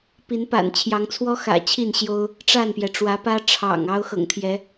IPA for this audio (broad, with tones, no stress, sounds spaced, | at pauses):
p i˨˦ n p a̰˨˩ n t͡ɕʰ j ɑ˨˦ ŋ t͡sʰ w ɔ˦ x ä̰˨˩ t͡ɕʰ i˥˨ n ɕ j o˦ ʊ̯ | ʈ͡ʂ a˥˨ n p j ɛ˩ ʈ͡ʂ w ä˨˦ p ä˦ ʈ͡ʂʰ ɑ̰˨˩ ŋ ɑ˦ ʊ̯ x ɤ̰˨˩ ŋ t̪ʰ j ɛ˨˦